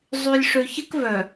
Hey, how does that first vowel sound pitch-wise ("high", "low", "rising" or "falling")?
low